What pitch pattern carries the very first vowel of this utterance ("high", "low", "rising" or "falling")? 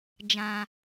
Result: low